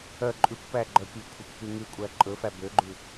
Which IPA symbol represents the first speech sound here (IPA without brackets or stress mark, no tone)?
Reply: œ